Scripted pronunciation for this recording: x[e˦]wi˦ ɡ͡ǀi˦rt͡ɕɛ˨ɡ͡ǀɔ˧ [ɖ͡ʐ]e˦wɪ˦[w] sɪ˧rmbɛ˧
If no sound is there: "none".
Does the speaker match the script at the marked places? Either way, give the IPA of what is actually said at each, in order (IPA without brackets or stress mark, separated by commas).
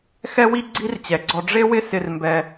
ɛ˦, ɖ͡ʐ, none